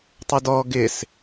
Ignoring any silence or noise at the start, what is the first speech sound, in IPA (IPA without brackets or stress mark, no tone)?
tˤ